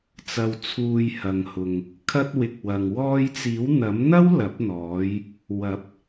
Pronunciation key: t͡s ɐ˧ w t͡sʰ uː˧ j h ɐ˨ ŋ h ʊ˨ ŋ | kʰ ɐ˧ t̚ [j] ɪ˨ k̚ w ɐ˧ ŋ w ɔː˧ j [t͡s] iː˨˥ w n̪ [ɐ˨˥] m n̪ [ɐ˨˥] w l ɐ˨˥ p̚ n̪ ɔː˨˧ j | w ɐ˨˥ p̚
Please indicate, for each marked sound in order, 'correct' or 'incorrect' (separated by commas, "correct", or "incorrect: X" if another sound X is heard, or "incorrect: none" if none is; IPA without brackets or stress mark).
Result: incorrect: w, correct, correct, incorrect: ɐ˥